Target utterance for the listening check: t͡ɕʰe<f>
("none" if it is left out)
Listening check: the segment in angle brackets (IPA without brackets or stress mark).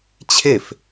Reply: f